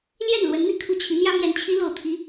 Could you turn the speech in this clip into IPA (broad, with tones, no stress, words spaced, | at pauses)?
ljɛ˥˩nlwə˧˥n n̪i˥kʰu˥˩ t͡ɕʰi˧˥n̪jä˥ mjɛ˧˥n t͡ɕʰi˧˥lo˨˩ʊ̯t̪ʰi˧˥